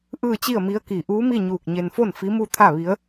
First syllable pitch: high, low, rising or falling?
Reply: falling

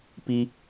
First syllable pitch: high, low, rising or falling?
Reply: high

